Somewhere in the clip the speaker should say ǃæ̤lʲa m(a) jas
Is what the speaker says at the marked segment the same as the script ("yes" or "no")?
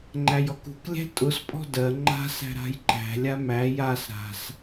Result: no